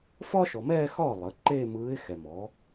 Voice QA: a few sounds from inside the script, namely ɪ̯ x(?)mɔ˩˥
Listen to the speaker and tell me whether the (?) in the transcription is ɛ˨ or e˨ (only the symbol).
ɛ˨